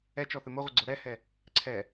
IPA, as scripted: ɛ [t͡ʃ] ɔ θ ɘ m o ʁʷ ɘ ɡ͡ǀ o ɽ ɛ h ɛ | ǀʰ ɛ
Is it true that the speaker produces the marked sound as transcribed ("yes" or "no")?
yes